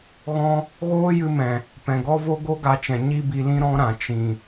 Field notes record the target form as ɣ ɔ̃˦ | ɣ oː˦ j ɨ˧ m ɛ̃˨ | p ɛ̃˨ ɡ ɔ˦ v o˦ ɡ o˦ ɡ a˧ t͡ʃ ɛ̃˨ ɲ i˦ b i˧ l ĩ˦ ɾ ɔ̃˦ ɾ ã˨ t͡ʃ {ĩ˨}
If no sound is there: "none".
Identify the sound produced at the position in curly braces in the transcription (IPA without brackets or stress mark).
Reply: ĩ˨